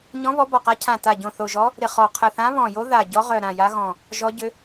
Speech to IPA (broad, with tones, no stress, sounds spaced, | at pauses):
ɲ ɔ̃˧˥ β ɔ˧˥ b ɔ˧˩ q a˧˥ cʰ ã˧˩ t a˧˩ ɟ õ˧˩ θ o˧˩ ʒ ɔ˧˥ | ɾ ɪ˧˩ χ ɔ˧˩ qʰ ə˧˩ θ ã˧˥ β ɔ̃˧˩ j o˧˥ ð a˧˩ ɟ ɔ˧˥ ʁ œ˧˩ ɾ ã˧˩ j a˧˥ ɣ ɔ̃˧˩ | ʒ ɔ˧˥ ɟ ʏ˧˥